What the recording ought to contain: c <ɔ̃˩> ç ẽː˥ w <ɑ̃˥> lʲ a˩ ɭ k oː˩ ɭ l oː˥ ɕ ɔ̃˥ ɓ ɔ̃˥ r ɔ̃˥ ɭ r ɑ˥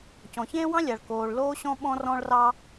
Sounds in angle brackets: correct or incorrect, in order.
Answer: correct, correct

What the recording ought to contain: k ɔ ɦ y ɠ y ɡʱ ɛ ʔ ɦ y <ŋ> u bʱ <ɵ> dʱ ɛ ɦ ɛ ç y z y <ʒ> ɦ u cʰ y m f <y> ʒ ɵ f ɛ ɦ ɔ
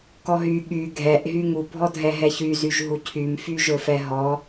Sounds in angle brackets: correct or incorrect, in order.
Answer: correct, incorrect: ɔ, correct, correct

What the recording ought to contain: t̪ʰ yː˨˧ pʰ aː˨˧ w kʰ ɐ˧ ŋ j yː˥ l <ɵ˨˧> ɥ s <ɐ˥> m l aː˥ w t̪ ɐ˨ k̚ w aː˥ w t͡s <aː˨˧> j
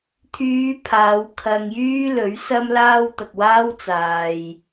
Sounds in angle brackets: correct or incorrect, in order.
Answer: incorrect: ɵ˨˥, correct, incorrect: aː˨

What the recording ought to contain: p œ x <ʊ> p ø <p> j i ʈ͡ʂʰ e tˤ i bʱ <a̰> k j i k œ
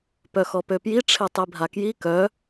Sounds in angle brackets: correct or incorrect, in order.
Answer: incorrect: ɔ, correct, incorrect: a

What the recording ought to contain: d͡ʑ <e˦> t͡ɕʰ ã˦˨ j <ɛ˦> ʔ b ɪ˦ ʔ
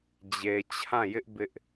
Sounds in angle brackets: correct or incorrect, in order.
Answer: incorrect: e˨, incorrect: ɪ˦

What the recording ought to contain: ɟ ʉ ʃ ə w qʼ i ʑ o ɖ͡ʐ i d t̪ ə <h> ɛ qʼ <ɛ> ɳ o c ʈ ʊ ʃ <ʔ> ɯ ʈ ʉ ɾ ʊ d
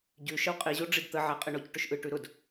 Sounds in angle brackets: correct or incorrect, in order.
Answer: incorrect: ʕ, incorrect: ɘ, correct

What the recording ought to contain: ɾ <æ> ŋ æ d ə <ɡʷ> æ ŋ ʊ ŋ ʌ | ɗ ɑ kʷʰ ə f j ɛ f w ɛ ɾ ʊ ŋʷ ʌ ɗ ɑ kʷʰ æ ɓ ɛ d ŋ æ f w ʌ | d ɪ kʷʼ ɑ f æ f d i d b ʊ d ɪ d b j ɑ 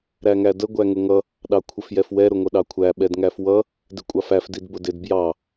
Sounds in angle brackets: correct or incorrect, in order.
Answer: correct, correct

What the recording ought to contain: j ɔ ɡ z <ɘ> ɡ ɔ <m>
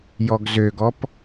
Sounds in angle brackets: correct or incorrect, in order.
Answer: incorrect: ø, incorrect: p

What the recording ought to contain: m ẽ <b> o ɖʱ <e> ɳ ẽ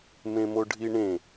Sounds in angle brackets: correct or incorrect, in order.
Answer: incorrect: m, incorrect: i

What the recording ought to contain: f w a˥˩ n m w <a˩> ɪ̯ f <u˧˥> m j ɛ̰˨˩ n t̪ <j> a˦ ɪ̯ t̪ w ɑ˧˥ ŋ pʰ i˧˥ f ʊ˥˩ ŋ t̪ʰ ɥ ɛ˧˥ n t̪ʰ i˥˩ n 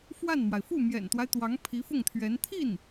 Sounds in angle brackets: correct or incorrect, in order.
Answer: correct, incorrect: u˥˩, incorrect: w

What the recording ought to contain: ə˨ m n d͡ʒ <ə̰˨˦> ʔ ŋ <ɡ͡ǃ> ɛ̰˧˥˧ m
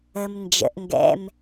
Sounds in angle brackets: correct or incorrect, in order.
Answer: correct, incorrect: ɡ

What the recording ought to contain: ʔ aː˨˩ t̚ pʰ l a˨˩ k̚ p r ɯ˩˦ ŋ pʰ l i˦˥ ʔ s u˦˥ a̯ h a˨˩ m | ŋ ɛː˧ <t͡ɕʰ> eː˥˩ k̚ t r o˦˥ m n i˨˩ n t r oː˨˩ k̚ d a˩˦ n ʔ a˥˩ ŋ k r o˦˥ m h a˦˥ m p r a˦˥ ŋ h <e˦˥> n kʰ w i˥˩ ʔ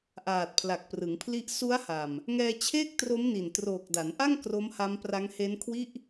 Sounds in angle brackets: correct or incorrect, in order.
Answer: correct, correct

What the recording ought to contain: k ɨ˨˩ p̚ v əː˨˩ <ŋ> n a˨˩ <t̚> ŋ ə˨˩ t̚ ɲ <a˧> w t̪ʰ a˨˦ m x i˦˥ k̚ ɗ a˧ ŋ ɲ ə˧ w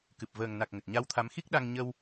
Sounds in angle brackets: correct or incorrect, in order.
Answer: correct, incorrect: k̚, correct

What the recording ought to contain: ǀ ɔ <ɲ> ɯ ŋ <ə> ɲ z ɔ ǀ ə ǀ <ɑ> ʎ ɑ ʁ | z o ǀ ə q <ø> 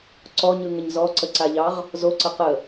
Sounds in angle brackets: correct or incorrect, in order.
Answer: correct, correct, incorrect: a, incorrect: ə

